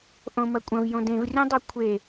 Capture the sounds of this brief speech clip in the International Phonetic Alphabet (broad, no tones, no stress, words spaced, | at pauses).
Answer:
ʔõmɐkʷʼɐ̃v jõdẽvrʲõdˤʌ kʷʰe